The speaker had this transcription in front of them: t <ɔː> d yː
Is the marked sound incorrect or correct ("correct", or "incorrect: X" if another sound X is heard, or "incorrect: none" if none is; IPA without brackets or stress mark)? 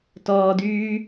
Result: correct